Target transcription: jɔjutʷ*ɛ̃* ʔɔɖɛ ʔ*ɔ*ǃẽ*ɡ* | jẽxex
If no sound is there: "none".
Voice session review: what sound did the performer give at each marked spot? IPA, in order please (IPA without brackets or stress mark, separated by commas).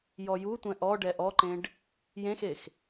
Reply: ɛ̃, ɔ, ɖ